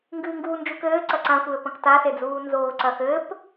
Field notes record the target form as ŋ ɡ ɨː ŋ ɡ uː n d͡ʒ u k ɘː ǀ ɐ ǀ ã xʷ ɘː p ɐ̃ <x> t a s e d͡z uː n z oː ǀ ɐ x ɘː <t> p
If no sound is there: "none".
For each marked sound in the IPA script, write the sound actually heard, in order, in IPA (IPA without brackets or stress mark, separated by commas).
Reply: k, none